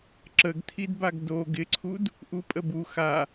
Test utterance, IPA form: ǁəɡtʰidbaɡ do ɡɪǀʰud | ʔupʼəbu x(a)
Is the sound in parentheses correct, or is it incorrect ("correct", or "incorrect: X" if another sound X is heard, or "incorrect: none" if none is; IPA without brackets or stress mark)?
correct